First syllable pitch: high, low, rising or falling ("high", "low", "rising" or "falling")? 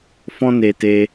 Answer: high